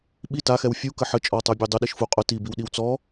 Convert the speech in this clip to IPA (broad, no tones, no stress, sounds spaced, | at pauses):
ɓ i t a x ɛ w fʲ u k ə ħ ə t͡ʃʼ ɔ tˤ ə˞ bʲ ə˞ dˤ ʊ ɗ i ʃ f u qʼ ʊ t i b i w ɗ i w t͡s ɔ